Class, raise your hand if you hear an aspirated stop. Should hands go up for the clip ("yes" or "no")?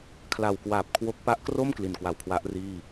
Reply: yes